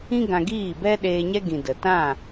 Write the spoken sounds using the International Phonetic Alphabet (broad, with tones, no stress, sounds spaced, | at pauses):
ĩ˦ ɡ ã˧ ɡ iː˦˨ b ɛ˦ ɗ eː˧ ɲ ɛ˦ ɡ ĩ˨ d ə˨ t ã˦˨